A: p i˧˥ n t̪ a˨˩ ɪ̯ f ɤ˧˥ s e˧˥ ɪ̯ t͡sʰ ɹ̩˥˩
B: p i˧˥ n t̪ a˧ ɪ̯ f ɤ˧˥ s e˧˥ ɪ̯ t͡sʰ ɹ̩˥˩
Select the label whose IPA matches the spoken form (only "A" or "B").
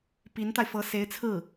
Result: B